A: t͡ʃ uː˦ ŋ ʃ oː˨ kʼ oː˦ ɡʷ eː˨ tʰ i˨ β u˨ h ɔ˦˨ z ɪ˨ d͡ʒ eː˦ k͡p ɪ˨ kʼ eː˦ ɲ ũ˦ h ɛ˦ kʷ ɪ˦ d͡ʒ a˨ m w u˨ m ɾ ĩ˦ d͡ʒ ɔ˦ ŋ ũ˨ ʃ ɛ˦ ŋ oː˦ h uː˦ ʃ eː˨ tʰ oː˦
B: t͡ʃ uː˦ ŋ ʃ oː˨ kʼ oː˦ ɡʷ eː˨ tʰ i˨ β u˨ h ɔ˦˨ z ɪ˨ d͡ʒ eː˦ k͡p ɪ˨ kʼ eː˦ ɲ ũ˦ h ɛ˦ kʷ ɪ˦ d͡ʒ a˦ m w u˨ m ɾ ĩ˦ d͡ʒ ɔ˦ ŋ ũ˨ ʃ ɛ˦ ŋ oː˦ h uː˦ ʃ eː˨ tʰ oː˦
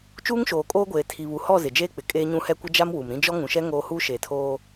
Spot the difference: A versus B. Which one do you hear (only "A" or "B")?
B